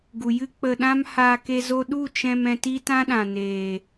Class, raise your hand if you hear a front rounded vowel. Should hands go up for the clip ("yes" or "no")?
no